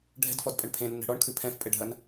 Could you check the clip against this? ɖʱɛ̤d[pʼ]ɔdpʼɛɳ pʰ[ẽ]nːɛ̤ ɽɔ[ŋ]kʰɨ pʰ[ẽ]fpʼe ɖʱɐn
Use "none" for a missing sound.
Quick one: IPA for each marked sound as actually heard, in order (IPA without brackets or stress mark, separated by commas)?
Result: f, ẽ, ɳ, ɛ̃